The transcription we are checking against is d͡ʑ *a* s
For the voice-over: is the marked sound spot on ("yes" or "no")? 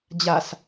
yes